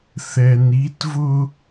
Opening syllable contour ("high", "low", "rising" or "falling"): low